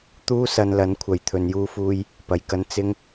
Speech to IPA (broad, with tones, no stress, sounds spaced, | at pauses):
t̪ uː˥ s ɐ˧ n l ɐ˨˥ n kʷʰ ɐ˨ j t̪ʰ ɵ˨˧ n j uː˥ f uː˥ j | p ɐ˧ j k ɐ˥ n t͡s ɪ˥ ŋ